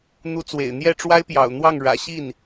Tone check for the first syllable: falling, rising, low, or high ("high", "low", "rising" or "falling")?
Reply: rising